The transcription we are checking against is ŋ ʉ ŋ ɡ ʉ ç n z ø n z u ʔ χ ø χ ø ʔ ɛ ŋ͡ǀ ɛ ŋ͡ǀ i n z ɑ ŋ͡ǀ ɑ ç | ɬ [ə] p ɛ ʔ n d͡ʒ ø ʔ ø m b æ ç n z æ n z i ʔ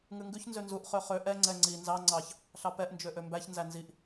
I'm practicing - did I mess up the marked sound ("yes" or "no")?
yes